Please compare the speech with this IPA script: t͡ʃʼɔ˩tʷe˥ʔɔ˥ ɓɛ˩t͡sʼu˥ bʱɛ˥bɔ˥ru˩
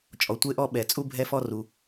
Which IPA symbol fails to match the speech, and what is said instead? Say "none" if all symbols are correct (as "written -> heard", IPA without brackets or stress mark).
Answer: b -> f